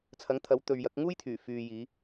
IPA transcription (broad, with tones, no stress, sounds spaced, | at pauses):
t͡sʰ ɐ˨˥ ŋ t̪ʰ ɐ˨˥ w t̪ ɵ˨ ɥ j ɐ˨˥ k̚ ŋ uː˥ j t̪ʰ yː˨˩ f yː˨ j iː˨˧